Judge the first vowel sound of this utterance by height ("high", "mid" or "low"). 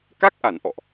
low